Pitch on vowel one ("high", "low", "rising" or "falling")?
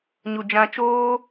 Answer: low